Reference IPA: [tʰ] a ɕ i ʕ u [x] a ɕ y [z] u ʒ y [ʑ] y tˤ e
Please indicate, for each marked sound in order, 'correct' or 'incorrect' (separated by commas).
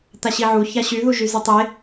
incorrect, incorrect, incorrect, incorrect